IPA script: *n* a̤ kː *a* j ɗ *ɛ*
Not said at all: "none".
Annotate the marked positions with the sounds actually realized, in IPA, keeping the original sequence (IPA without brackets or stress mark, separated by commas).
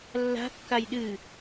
lː, a, ɨ